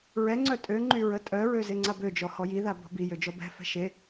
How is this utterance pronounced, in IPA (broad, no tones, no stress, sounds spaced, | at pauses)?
ɹ ɛ ŋ͡ǀ œ tʼ ø ŋ͡ǃ y ɹ ə tʼ œ ɹ ø z e ŋ͡ǀ a b ø d͡ʒ ɔ h ɔ j i ð a b ɔ̤ b i j ø d͡ʒ ɔ b ɛ̤ f ɛ̤ ʃ e